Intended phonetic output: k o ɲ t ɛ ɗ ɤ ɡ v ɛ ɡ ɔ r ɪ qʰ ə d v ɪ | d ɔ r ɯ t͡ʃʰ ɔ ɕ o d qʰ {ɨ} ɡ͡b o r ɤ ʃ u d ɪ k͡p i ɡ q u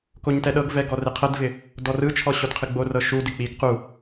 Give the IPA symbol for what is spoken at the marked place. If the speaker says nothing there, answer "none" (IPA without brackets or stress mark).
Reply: ɨ